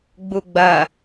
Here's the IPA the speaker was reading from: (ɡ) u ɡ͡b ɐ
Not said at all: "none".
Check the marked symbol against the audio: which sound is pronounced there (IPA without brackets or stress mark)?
ɡ͡b